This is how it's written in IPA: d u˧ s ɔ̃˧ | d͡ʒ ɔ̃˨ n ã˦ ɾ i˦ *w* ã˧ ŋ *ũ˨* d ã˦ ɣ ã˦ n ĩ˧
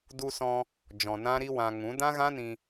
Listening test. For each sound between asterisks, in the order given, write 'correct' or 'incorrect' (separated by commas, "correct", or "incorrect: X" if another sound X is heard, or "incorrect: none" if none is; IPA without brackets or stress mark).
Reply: correct, incorrect: ũ˨˦